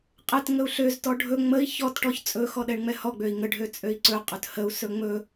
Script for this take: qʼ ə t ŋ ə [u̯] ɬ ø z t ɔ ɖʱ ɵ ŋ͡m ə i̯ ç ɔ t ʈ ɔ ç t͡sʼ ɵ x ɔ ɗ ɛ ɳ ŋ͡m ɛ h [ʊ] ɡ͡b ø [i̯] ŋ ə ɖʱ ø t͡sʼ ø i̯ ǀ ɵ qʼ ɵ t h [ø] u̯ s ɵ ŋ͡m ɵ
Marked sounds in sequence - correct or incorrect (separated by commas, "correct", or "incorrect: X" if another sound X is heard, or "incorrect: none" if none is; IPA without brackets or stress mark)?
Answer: correct, incorrect: ɔ, correct, incorrect: ə